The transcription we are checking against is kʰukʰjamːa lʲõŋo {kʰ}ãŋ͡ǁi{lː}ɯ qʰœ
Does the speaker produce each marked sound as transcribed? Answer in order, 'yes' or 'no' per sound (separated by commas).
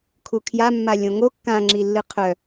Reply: no, yes